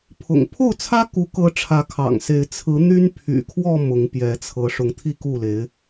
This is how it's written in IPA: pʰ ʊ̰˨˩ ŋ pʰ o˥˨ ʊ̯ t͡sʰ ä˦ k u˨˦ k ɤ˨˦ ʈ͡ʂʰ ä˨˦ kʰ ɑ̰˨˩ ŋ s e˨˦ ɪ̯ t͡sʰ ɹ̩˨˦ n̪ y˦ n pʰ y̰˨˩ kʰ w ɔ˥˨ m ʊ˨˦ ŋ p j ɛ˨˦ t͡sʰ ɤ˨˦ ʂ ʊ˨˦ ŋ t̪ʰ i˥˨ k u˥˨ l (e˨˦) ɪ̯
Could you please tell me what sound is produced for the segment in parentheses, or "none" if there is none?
e˨˦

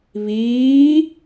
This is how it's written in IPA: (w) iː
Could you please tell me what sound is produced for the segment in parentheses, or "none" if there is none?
β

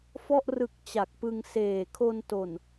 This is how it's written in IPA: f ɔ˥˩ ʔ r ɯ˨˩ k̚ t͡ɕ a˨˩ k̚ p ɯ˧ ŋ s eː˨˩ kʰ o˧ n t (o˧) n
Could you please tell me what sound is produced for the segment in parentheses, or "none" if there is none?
o˨˩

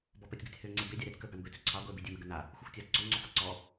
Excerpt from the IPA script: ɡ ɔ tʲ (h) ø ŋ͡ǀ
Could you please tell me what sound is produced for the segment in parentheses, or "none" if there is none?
h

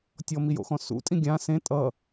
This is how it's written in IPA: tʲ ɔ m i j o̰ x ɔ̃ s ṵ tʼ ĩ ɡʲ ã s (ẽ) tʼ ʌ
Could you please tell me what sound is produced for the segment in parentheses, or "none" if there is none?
ẽ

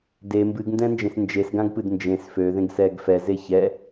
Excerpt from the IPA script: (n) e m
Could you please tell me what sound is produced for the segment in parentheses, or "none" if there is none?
d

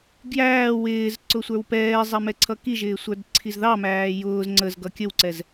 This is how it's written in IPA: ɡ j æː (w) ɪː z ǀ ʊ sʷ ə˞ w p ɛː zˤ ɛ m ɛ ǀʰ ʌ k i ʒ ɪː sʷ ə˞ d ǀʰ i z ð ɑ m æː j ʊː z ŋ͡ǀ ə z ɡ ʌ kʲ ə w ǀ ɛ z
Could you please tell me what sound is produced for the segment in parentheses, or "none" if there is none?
w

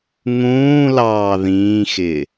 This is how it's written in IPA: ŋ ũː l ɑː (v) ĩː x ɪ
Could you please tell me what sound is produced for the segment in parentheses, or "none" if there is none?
ð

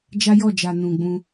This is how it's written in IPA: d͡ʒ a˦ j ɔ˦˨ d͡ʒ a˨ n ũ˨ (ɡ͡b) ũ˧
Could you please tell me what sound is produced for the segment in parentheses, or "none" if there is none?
ɡ͡b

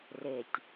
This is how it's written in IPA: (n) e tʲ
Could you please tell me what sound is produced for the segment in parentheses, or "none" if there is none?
r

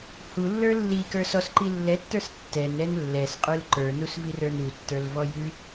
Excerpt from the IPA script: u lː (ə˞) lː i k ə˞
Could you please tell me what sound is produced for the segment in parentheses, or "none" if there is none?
ə˞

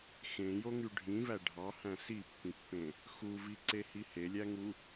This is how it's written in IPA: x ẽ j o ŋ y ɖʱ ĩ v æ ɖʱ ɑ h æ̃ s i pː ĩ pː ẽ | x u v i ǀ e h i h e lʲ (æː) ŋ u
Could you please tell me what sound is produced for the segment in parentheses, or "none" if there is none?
æ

